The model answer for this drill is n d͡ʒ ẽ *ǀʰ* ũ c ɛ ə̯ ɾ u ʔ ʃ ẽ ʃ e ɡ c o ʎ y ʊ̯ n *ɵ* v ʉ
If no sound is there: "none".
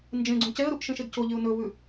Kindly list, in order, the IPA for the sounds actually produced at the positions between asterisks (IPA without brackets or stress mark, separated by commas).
ɡ͡ǀ, ɵ